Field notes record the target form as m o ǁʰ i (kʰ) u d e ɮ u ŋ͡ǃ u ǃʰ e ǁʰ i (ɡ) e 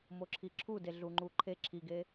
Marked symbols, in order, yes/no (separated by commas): no, yes